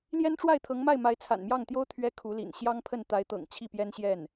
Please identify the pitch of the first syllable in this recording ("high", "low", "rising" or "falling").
high